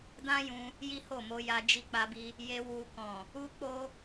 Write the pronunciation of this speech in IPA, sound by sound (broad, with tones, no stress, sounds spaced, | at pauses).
d ã˦ j ũ˧ | j i˦ h o˦˨ m o˧ j a˧ d͡ʒ i˧ k͡p a˧ b i˧ | j e˧ w u˧ k ɔ̃˨ | u˦ k͡p o˦